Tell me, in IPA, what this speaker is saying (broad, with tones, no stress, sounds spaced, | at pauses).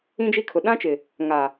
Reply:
ĩ˦ d͡ʒ i˦ kʰ ʊ˨ ɗ ã˦ t͡ʃ ɪ˨ | ŋ a˨